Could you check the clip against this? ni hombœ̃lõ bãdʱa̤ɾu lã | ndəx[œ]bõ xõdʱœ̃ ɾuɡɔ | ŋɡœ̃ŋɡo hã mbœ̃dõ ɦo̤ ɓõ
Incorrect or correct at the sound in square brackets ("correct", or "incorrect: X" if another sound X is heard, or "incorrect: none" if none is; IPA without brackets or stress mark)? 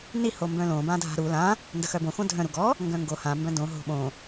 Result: correct